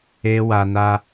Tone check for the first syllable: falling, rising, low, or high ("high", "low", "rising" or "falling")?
high